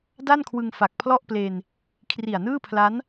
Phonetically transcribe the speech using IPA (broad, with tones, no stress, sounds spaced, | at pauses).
d a˥˩ n kʰ w ɯ˧ ŋ f a˨˩ k̚ pʰ l ɔ˥˩ ʔ p l e˧ n | kʰ r i˨˩ a̯ n ɯː˥˩ pʰ l a˦˥ n